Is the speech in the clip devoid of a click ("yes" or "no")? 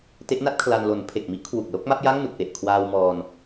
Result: yes